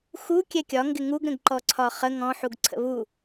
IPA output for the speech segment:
x u kʲ ɛ kʲ ɒ ŋ ɡ ɪ ŋ u ɡ ɾ ə̃ ɡ ǃ ɔ ǀʰ ɒ χ ə ŋ ɔ̃ ħ u ɡ ǀʰ ə̰ β u

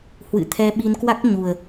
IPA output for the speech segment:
h w ɨ̰˧˨ t̪ʰ ɛ˧ ɓ i˧ n k w a˦˥ k̚ ɲ u˨˩ ə̯

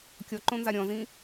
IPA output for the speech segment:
kʲ ɔ ǃ õ n z a ɾʲ ɔ̃ z ĩ

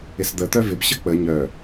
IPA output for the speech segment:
ɪ s d̪ ə t̪ œ v ɪ b ɕ ə k͡p ə ɲ œ

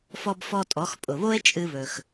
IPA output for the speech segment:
f ɔ˧ b f ɔ˧ tʼ ɔ˩˧ x pʼ ʊ˩ β o˥ e̯ t͡ʃʼ ɨ˧ β ɵ˩ x

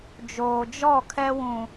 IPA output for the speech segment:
d͡ʒ oː˨ d͡ʒ ɔ˦˨ kʰ ɛ˦ w ũ˨

